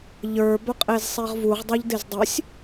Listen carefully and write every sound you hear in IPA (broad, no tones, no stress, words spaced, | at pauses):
ʎə˞ bœqʼezsˤeʁvuʁ dˤɜʎdezdˤɨsʲ